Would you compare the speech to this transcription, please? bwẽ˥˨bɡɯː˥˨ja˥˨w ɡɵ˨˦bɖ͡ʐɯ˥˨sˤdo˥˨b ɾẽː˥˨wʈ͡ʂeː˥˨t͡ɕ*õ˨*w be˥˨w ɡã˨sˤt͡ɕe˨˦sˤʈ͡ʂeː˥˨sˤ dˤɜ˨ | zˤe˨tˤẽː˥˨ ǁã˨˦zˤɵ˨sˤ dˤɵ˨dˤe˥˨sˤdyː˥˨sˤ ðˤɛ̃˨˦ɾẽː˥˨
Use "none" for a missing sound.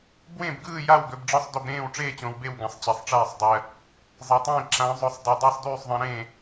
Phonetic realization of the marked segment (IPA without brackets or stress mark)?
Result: õ˨